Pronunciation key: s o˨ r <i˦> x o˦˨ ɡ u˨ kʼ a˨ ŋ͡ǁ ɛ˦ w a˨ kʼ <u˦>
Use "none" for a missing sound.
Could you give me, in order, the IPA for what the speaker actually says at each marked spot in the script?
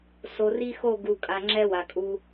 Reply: i˦, u˦

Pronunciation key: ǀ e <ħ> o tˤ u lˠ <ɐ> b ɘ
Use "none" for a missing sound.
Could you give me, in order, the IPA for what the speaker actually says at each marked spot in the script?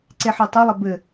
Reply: ħ, ɐ

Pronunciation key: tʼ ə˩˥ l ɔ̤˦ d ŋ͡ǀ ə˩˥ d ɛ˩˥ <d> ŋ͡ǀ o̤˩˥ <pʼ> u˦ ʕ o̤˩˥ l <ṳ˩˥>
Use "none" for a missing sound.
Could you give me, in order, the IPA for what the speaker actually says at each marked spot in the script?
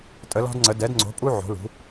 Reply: d, pʼ, ṳ˩˥

